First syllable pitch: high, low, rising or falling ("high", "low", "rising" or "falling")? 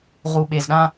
low